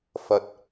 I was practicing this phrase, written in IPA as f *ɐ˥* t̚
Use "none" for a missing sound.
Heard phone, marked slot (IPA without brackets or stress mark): ɐ˨